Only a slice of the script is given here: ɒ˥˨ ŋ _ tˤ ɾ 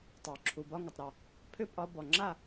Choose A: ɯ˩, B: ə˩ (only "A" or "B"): B